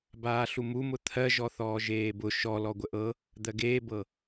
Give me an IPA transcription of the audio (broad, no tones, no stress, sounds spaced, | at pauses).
b aː ɬ u m u m ʊ t̪ʰ ɜ ʒ ɔ θ ɔː ʒ eː b ʊ ʃ ɔ l ɔ ɡʷ ə ʔ ɤ | d̪ ɜ ɡ eː b ɤ